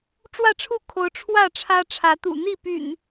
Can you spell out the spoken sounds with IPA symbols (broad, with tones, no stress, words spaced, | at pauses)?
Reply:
ʈ͡ʂwä˥˨ʈ͡ʂʰu˥˨ kʰo˨˦ʊ̯ ʈ͡ʂʰwä˥˨ʈ͡ʂʰä˦ʈ͡ʂʰä˨˦ t̪ṵ˨˩n̪i˥˨py̰˨˩n